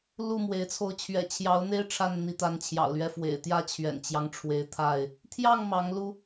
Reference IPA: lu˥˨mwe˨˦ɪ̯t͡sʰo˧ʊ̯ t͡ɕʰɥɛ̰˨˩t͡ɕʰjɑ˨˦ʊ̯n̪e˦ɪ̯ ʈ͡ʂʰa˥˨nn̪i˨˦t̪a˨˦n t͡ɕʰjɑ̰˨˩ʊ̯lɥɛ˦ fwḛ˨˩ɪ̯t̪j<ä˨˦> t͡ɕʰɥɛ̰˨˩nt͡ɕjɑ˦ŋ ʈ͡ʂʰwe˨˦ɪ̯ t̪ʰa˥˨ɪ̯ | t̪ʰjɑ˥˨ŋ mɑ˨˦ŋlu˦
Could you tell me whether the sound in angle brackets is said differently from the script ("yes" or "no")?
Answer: yes